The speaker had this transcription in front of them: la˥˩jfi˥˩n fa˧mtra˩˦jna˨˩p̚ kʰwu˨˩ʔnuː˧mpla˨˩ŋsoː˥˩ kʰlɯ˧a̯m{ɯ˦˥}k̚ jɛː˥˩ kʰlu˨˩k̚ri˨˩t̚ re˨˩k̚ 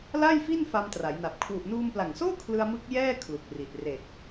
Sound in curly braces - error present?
no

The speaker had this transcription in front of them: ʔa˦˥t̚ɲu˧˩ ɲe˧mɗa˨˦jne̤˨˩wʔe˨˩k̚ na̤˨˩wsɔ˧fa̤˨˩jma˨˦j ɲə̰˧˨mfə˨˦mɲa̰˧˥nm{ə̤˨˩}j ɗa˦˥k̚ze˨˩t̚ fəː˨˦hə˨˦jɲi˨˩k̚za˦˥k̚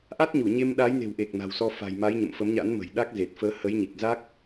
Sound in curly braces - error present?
no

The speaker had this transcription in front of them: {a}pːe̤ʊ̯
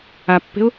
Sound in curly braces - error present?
no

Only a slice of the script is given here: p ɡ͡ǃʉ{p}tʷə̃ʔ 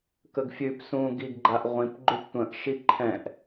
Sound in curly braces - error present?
no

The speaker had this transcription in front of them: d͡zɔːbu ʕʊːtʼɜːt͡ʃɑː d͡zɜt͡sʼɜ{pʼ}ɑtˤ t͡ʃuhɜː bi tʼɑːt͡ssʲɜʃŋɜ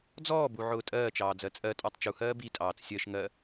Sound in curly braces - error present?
yes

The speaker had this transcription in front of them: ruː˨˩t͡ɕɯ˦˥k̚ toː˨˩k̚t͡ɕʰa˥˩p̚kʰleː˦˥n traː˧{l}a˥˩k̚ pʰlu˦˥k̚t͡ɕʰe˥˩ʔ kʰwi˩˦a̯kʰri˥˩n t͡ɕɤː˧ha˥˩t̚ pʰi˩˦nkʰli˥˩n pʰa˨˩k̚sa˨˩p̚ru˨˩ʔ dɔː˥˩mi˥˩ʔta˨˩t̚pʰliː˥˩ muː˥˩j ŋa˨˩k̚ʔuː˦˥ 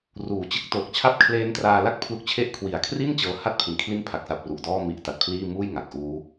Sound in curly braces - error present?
no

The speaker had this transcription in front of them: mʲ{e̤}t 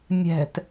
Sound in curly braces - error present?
yes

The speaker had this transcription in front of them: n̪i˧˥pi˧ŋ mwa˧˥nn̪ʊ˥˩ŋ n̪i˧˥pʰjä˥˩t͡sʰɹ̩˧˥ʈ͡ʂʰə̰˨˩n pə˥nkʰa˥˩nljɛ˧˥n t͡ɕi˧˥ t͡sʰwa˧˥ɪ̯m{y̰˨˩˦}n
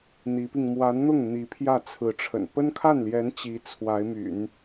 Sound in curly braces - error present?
no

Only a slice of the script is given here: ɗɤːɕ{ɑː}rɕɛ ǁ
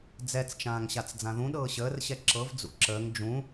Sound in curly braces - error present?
yes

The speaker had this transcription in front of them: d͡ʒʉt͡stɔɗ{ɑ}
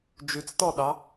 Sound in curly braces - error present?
no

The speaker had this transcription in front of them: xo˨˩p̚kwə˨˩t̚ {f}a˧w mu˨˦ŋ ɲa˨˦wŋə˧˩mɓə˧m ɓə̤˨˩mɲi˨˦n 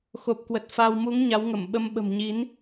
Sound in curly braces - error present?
no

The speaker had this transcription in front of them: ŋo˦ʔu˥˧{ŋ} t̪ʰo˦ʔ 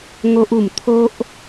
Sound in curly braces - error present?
yes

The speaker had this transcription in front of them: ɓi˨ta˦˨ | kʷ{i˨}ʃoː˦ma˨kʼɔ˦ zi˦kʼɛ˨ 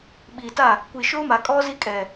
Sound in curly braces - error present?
no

